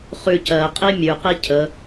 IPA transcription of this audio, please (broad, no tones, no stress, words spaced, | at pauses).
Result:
χʉ cɜqʼi mʲʉqi cʰə